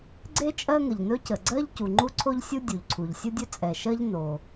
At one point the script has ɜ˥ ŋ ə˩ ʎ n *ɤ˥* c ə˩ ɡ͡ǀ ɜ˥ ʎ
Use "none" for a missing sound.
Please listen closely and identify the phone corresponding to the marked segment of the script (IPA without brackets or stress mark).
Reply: ɵ˥